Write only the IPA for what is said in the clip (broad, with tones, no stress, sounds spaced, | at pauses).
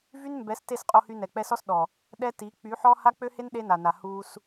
v y˦ n m b ɛ˨˦ s t e˦˨ s qʼ o˧ h y˧ n ɛ˨ k͡p ɛ˧ s ɔ˦ s ɗ ɔ˨ | ɗ ɛ˦ t i˨˦ k͡p y˨˦ ħ ɔ˦ h a˦ k͡p ø˦ h e˦ n ɗ e˦ n a˨ n a˨ h uː˧ s